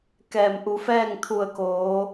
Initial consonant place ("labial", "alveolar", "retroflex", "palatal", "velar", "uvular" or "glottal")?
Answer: velar